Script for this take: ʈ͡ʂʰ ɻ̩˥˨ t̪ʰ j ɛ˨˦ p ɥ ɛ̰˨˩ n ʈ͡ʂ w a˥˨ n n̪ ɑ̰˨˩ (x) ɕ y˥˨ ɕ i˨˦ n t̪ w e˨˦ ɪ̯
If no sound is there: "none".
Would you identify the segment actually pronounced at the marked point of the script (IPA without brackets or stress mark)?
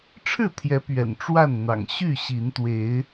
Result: ŋ